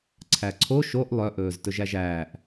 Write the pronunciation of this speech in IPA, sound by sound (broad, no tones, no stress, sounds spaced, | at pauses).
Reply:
ǀʰ æ ǀʰ o ʃ o ʔ lˠ œ ʔ ɵː z t ɵ ʒ æ ʒ æː ʔ